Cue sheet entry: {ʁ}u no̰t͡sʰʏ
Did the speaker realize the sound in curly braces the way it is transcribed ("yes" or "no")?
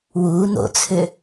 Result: no